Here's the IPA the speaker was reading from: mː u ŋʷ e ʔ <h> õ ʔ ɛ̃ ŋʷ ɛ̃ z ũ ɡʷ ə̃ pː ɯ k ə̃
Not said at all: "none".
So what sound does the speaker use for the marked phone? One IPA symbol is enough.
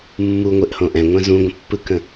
h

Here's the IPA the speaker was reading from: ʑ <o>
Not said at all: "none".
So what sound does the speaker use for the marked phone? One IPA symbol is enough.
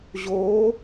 o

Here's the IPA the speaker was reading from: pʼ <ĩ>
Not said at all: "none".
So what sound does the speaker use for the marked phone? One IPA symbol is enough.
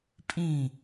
ĩ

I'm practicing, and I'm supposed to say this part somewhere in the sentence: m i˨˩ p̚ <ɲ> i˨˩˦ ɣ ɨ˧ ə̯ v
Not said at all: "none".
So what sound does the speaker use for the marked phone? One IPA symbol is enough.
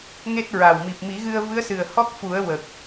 m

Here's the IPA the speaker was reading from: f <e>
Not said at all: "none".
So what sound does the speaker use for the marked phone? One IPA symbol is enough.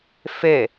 e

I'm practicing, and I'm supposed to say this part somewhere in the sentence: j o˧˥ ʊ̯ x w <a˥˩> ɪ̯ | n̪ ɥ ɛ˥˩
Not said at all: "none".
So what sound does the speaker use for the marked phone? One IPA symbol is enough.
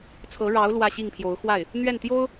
a˥˩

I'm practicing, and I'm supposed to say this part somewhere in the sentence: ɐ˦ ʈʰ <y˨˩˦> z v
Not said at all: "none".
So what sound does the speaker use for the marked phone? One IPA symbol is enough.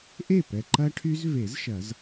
y˦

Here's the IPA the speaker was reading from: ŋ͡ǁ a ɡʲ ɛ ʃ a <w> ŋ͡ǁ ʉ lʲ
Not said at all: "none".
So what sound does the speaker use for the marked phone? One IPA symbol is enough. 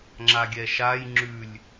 j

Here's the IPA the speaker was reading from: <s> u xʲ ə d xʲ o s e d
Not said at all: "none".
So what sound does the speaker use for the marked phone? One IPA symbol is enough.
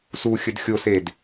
s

